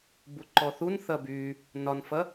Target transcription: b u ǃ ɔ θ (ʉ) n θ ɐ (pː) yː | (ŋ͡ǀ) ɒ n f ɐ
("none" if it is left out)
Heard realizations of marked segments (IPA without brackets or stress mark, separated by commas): u, b, n